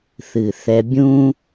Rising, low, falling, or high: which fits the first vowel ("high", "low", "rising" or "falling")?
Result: low